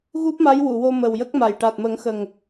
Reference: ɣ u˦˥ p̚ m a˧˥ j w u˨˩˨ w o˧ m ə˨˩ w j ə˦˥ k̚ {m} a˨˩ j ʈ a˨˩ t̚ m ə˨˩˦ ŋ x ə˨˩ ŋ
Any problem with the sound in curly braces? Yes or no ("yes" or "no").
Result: no